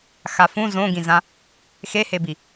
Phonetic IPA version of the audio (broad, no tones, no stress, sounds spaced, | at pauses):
x a f ũ z õ ɡ ĩ z ã | x e h e b i